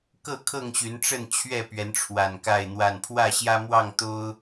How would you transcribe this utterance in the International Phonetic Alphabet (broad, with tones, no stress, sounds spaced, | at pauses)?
k ɤ˥˨ kʰ ɤ˥˨ ŋ ɕ y˨˦ n ʈ͡ʂ ə˥˨ n t͡ɕʰ ɥ ɛ˥˨ p ɥ ɛ˨˦ n ʈ͡ʂʰ w a˨˩ n k a˥˨ ɪ̯ n̪ w a˥˨ n pʰ w ä˥˨ ɕ j ä˦ m w ɑ˥˨ ŋ t̪ o˦ ʊ̯